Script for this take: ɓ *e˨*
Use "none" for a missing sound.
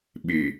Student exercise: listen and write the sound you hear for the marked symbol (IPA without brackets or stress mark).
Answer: e˨